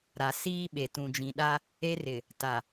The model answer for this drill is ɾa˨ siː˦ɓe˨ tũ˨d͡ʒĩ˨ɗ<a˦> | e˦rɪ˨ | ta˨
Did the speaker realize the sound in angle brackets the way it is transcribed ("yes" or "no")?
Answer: yes